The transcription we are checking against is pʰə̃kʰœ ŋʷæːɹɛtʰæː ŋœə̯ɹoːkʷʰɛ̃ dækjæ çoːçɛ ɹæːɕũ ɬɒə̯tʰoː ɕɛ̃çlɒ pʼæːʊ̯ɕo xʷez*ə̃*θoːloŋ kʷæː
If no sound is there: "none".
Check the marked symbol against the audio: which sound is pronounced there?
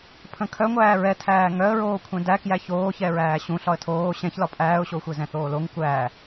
ɛ̃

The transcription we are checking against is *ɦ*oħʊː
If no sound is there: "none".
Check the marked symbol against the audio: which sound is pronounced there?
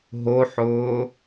ɦ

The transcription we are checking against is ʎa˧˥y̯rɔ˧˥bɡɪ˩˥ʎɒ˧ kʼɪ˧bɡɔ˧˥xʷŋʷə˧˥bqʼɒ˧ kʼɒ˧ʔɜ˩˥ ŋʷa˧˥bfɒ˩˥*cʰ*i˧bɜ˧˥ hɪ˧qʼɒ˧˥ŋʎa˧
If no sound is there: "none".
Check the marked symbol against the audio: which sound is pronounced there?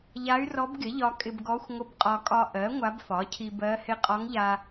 cʰ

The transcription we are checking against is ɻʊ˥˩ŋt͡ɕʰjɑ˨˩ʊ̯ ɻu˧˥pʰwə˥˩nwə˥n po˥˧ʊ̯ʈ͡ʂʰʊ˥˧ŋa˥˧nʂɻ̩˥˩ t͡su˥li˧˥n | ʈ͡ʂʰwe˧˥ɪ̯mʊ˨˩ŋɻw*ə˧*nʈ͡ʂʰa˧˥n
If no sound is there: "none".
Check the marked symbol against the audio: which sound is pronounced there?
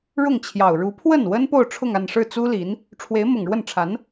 ə˥˩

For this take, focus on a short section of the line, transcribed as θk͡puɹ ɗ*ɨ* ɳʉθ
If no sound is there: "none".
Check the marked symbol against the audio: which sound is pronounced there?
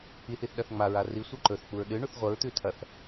ɨ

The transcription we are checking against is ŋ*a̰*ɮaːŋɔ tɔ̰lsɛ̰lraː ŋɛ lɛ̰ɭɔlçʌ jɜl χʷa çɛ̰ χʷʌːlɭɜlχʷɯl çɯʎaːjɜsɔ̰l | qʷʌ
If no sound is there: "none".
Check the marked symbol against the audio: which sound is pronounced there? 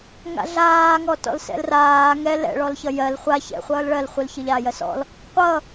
a̰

